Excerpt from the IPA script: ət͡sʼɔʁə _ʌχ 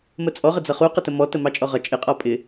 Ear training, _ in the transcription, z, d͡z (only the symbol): d͡z